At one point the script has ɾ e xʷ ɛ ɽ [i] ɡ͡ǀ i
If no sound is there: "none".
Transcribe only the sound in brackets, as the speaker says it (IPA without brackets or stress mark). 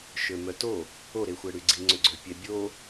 y